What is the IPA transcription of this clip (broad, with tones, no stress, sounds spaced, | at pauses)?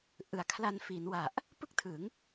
ʔ ɯ˨˩ a̯ kʰ l a˧ n f i˩˦ n w a˨˩ ʔ | p ɯ˥˩ k̚ tʰ ɯ˩˦ ŋ